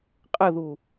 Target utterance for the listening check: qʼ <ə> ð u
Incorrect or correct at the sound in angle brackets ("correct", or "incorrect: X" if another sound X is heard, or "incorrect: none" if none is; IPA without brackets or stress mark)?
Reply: correct